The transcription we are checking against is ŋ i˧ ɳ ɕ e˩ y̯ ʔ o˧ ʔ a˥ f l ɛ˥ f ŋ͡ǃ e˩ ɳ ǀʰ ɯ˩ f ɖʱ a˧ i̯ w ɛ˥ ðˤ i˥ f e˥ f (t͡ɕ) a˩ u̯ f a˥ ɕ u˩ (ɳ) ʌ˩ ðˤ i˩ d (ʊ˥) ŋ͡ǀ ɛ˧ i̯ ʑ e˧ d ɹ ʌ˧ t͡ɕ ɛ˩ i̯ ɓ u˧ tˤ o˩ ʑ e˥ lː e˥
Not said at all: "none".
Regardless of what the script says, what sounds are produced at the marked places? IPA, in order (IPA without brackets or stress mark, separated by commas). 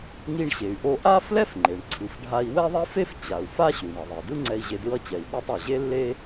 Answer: t͡ɕ, ɳ, ɯ˥